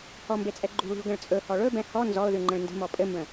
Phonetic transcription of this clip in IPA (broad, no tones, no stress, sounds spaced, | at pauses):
h ɔ m b e t͡sʼ ɛ ɡ͡ǃ ṳ ɭ ṳ ɭ ɡ ə̃ ɭ t͡sʼ ɵ h ɔ ɭ ɵ b ɛ̃ h ɔ n z ɔ ʊ̯ ð ʉ ŋ͡ǃ ə̃ ɭ n d ə̤ m ɔ pʼ ɘ m b ə̃